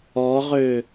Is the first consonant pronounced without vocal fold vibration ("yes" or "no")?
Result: no